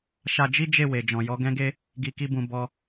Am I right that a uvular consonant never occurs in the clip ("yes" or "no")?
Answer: yes